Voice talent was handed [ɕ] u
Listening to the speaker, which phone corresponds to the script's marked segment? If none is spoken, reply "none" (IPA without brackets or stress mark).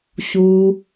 ɕ